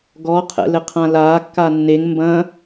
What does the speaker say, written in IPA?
ɡ ɔ qʰ ɛ̰ l ɘ qʰ ã l aː kː a nː e ŋ m b ɐ̃

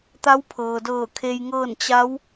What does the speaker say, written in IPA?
t̪ a˧˥ w pʰ ɤː˩ d ɤː˧˩ kʰ e˧ j ŋ ɤː˥˨ n t͡ɕ a˧˥ w

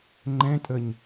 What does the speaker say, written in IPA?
ŋ͡ǃ ɛ̃ tʼ ə ɲ

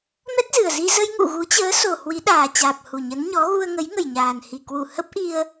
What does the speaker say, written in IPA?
m ɛ˦˥ t̚ z ɨ˨˩ ə̯ z i˧ z ə˧ j ŋ ṵ˧˨ ɣ u˨˦ t͡ɕ əː˨˦ s o˨˩ h w i˨˦ ɗ aː˨˩ t͡ɕ aː˨˩ p̚ h u˨˩ ɲ ə˨˦ n ɲ ɔ˨˦ ɣ u˧ ə̯ ŋ ə˨˦ j ŋ ə˨˩ j ɲ aː˨˩ n h i˨˩ k w u˧˩ h ə˦˥ p̚ ʔ i˧ ə̯

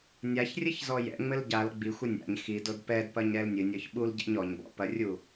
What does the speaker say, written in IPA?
nʲ a ç rʲ ɘ ç z ɔ j ɛ̰ ŋ͡m ɘ l ɟ a l ɡ͡b i xʷ ɘ nʲ a̰ ɲ x i d o d p ɛ d p ɐ ɲ ɾ ɛ l nʲ ɨ nʲ ɔ ç ɓ u l ɟ ɛ̰ ɲ ɔ ɲ b ɔ̰ p ɐ rʲ u

